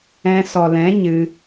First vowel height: mid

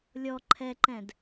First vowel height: mid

